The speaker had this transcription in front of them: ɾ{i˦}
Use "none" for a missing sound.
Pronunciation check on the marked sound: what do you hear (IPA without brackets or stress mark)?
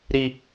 i˦